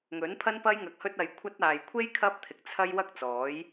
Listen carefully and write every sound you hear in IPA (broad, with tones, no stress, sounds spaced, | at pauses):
ŋ ɵ˨˥ n pʰ ɐ˥ n p ɐ˥ j ŋ ɐ˧ k̚ h ɵ˥ t̚ ɐ˧ j kʷʰ ɐ˥ t̚ aː˨ j kʷʰ e˥ j kʰ ɐ˥ p̚ t̪ʰ ɪ˨˥ k̚ t͡sʰ ɐ˥ j w ɐ˥ k̚ t͡s ɔː˨˥ j